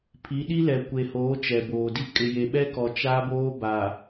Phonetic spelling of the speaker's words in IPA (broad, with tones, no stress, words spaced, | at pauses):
pʰi˨˦ɗi˦lɛ˨ kʷe˨hoː˨˦ t͡ʃɛ˨boː˨di˦ kʼɪ˨je˨ɓɛ˦kɔ˨ t͡ʃa˦boː˦ ba˨